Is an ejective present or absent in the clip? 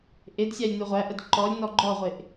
absent